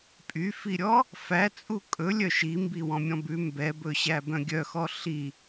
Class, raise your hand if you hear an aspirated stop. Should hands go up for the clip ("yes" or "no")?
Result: no